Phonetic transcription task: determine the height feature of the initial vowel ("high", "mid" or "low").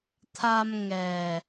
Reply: low